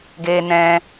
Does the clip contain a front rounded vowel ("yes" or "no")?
no